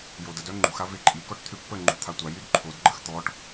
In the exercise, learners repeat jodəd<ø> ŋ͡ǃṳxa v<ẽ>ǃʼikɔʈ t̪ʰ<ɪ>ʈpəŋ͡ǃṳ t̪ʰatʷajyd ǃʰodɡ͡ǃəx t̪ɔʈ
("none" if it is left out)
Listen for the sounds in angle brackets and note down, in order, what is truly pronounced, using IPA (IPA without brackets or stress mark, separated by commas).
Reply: œ, e, y